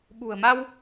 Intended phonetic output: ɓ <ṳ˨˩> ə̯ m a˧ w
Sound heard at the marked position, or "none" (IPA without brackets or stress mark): ṳ˨˩